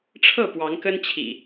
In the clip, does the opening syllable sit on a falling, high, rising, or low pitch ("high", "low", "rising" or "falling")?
falling